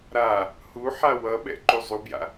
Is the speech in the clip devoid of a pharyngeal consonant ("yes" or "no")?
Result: no